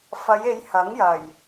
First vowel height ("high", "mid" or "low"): low